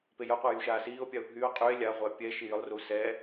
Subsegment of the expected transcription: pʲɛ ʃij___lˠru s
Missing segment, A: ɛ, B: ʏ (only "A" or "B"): B